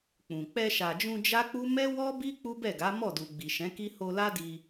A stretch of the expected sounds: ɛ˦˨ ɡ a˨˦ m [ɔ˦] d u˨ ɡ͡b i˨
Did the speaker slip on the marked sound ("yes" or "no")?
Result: yes